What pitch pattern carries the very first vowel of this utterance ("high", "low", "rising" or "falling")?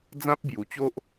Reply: high